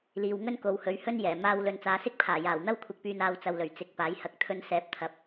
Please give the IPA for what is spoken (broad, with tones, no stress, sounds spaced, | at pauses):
l iː˨ w ŋ ɵ˥ n k o˨ w h ɵ˨˥ ɥ h ɵ˥ n j ɛː˨˩ m aː˧ w l ɵ˨ n t͡s aː˨˧ s ɪ˥ k̚ pʰ aː˨˩ j aː˨˩ w n̪ ɐ˥ w kʷʰ ɪ˨˥ k̚ p yː˨ n aː˧ w t͡s ɐ˨ w l ɵ˨˩ ɥ t͡s ɪ˨˥ k̚ p aː˨˥ j h ɐ˨˥ k̚ t̪ʰ ɵ˧ n s ɛː˨˥ p̚ t̪ʰ ɐ˨ p̚